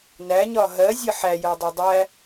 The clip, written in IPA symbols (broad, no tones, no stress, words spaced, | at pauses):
næɲɒ ɦɜzʲə ħæjɜdˤɛ dˤæ